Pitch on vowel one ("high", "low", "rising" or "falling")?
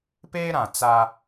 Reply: high